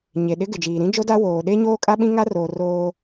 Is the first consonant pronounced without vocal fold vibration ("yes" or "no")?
no